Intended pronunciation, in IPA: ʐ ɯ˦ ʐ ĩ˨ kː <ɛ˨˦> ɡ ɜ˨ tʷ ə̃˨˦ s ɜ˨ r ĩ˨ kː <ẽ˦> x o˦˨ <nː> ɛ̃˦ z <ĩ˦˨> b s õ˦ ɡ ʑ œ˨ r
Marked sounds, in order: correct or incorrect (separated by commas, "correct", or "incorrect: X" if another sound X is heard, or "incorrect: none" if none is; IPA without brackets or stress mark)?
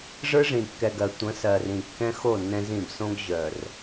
incorrect: ɛ˨, incorrect: ɛ̃˦, correct, correct